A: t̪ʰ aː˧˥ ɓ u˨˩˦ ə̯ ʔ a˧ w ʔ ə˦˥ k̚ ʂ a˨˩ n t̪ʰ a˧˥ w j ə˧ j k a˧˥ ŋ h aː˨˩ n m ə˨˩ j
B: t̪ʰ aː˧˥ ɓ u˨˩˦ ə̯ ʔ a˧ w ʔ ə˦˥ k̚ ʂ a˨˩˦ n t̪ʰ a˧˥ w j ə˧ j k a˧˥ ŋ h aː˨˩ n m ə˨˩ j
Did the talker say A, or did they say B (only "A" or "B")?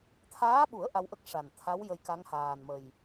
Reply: A